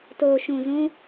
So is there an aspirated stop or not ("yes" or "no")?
no